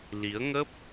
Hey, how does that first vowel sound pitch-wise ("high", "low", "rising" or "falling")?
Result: rising